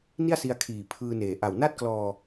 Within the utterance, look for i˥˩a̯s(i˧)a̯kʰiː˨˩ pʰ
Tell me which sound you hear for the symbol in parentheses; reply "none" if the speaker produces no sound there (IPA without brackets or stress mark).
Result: i˧